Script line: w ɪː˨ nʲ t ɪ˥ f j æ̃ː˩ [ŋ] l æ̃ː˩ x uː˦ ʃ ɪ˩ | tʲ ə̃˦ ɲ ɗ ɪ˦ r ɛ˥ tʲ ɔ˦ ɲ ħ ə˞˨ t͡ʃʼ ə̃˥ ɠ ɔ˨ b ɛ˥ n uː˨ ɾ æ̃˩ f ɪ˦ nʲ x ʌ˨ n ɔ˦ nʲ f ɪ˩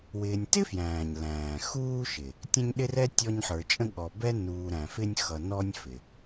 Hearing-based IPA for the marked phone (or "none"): ɲ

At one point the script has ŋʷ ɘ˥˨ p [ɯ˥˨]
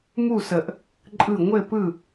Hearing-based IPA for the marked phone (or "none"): ɯ˥˨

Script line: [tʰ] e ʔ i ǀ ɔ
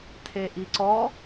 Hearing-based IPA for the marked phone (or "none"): tʰ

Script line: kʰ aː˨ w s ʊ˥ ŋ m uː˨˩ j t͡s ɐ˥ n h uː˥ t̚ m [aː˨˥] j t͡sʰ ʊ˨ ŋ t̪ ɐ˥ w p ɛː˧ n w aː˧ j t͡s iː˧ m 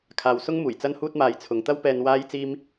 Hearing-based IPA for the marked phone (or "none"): aː˧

